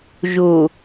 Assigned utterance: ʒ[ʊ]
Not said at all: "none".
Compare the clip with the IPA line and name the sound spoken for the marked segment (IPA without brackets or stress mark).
ʊ